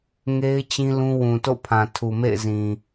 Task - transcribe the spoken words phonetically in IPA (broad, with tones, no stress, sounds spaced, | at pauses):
ŋ e˦ ɪ̯ t͡ɕ ĩ˦ l ũ˦ w ũ˨ t o̰˦˨ pʰ ã˨ tʰ u˨ m ḛ˦˨ ɪ̯ z ĩ˨